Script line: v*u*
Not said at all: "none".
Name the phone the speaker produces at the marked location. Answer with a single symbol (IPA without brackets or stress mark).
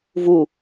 u